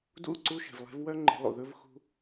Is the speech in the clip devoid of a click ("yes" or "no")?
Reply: no